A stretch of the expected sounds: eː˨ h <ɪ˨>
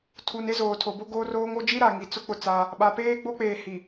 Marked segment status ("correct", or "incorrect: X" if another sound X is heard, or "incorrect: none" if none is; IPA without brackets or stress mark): incorrect: i˨